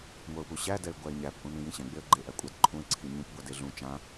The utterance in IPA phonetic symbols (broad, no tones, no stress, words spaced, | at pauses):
ŋʷɜʊ̯puɕæ dɛɪ̯ɡʷæɪ̯ɲæp ʔũnĩjĩɕɛ̃ ɡ͡beə̯ɡ͡ǃe ʔækʷʼadǃʰũɪ̯ ǀʰiɲũp ɡʷadeɮũ t͡ʃã